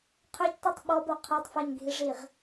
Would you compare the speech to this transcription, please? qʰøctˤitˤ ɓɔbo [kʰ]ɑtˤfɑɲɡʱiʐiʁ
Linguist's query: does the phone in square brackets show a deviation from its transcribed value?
yes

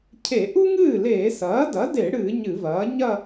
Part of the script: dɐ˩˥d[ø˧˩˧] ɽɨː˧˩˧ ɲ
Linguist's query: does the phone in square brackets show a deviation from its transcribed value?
yes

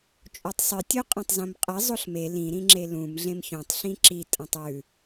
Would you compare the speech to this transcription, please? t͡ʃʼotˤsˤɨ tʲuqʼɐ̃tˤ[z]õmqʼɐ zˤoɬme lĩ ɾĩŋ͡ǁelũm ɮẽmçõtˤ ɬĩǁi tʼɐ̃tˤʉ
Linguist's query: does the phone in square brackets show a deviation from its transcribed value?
no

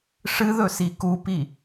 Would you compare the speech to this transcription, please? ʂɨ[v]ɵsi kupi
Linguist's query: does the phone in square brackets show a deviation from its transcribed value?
yes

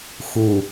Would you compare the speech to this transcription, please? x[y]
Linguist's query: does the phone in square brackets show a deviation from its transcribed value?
yes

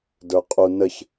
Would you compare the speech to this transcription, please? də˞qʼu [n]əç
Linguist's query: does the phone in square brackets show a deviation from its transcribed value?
no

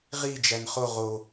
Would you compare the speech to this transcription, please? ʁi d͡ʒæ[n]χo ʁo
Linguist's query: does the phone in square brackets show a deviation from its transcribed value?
no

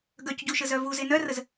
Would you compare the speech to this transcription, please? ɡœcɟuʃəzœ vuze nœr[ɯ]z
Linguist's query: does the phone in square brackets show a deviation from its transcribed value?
yes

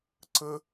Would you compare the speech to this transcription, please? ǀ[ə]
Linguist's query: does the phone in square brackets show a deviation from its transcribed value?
no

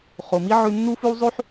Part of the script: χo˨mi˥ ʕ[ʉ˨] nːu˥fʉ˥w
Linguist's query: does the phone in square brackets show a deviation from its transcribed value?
yes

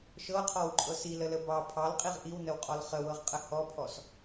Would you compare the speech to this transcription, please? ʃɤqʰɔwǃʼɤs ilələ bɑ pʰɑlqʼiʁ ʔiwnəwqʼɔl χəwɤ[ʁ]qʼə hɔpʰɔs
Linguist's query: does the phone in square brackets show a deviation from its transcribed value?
no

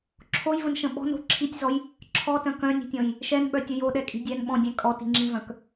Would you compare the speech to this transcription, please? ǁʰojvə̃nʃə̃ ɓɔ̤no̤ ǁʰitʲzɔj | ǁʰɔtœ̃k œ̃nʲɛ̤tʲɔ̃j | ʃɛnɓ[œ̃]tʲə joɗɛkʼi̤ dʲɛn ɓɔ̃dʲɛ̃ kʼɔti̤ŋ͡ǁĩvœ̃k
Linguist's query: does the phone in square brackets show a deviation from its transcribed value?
yes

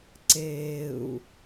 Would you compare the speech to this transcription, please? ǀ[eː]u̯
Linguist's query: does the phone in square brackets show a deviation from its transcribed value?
no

